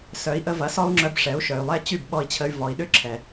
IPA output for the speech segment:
s œ˩˥ i̯ ʔ ə˧ v ɐ˩˥ s ɔ˥ u̯ ŋ͡ǁ œ˧ b ʂ ɛ˩˥ u̯ ʃ œ˩ y̯ lˠ ɛ˥ t͡ɕ y˥˩ b ɓ ɔ˧ i̯ t͡ɕʰ ə˧ y̯ v ɔ˩˥ i̯ ɗ ʏ˥ ǁʰ ɛ˩

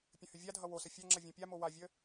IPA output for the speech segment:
pʲ ə̃ h ʏ vʲ a dʱ ʌ w o s ə fʲ a ŋ͡ǁ ʌ vʲ ũ pʲ a m o w a vʲ ə

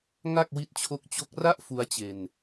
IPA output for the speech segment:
ŋ a˥˩ k̚ w i˦˥ t̚ t͡ɕʰ o˦˥ k̚ t͡ɕ o˦˥ k̚ r a˥˩ ʔ f u˦˥ a̯ t͡ɕ e˧ n

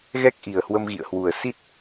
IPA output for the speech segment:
ɣ ɛ˦˥ k̚ ʔ i˨˩ ə̯ h w ə˧ m ɣ ḭ˧˨ ə̯ h w u˧˩ ə̯ s i˦˥ t̚

